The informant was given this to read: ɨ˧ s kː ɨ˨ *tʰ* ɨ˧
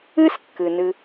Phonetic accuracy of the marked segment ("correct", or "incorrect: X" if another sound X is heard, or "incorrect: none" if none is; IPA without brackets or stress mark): incorrect: n